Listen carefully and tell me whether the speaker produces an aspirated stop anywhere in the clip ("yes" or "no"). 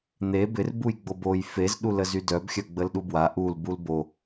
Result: no